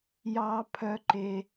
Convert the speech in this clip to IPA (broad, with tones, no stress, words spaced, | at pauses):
jɑ˦pʰœ˦ǃe˦